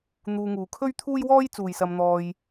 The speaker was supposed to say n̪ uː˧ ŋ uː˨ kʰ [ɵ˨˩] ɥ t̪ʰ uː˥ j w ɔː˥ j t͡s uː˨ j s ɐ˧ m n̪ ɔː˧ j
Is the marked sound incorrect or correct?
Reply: incorrect